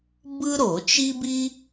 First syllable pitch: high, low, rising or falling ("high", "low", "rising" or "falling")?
high